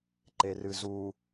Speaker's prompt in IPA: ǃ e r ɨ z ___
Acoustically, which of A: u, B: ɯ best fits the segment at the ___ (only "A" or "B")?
A